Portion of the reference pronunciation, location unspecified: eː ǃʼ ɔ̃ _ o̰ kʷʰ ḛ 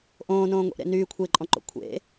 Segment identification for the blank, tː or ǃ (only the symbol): ǃ